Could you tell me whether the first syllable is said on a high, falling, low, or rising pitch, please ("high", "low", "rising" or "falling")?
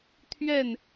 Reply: falling